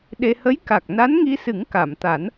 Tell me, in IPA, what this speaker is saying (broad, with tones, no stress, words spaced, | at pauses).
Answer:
ɗe˧ hə˧˥jka˨˩k̚ na˧˥nŋi˧sɨ˨˩˦ŋ ka˨˩˨mt̪a˨˩˦n